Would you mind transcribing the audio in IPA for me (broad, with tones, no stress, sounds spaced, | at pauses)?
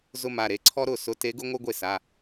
z ʊ˥ m a˩˧˩ ɾ e˩˧˩ ǀʰ ɔ˥ ɾ ʊ˥˩ s ʊ˧˥ t e˧˥ ɡ ʊ˥ ŋʷ ɨ˥ ɡʷ e˥˩ s a˩˧˩